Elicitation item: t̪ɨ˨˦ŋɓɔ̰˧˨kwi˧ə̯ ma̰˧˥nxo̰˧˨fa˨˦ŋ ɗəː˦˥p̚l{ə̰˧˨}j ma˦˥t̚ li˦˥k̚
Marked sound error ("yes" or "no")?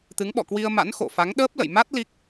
no